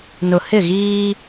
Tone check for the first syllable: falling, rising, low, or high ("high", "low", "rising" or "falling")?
low